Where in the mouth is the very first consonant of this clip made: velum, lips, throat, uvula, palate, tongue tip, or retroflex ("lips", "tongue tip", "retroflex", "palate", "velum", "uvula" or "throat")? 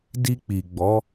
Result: tongue tip